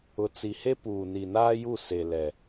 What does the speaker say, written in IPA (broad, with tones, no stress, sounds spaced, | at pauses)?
ʊ˨ t͡s i˨ h e˦ p uː˨ n i˨ n aː˦ j u˦˨ s e˨ l ɛ˨